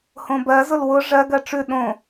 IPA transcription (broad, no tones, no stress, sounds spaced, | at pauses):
h õ b ɜ z ʊ l w ʊ ʐ ɜ ɡ ɜ ʈ͡ʂ ʉ ɗ õ